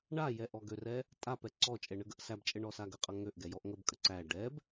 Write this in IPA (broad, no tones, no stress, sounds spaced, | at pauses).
ɳ a j ɛ ʔ ɔ ɡ ø r ɛ | tʼ a p ɛ ǀ ɔ t͡ʃʼ ɛ ɳ ə ɡ ə ʔ s æ b t͡ʃʼ ə ɳ ɔ s a ɡ ə qʼ ʌ ŋ ø ʔ ɡ ɛ j ɔ ʔ ŋ ə b kʼ ə ǀ æ ɖ ɛ b